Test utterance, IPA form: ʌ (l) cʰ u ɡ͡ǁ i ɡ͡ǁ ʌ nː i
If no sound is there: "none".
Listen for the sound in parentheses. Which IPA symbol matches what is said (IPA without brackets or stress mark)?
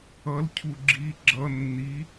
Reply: l